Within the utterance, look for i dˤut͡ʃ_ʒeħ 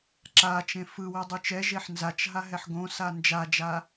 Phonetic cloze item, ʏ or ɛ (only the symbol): ɛ